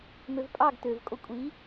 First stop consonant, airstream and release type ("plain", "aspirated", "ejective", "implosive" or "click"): ejective